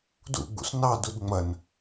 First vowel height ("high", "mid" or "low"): high